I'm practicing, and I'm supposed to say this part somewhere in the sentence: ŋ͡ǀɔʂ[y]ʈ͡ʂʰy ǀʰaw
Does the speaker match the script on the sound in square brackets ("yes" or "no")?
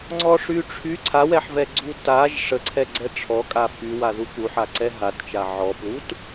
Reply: yes